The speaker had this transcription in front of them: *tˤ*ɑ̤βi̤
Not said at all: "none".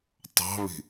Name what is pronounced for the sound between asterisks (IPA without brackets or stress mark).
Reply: tˤ